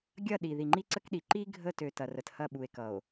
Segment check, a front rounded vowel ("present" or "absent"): present